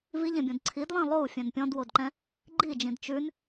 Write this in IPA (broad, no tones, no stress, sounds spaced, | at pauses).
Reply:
v i ʎ ẽ bʲ õ d ǀʰ i d lˠ ĩ lˠ o u̯ fʲ ɛ̃ n pʲ ɔ̃ d w o d ǃ ɛ̃ | ɡ͡ǃ i d͡ʒ ĩ d t͡ʃ ʉ n